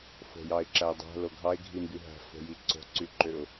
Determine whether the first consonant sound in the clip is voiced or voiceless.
voiceless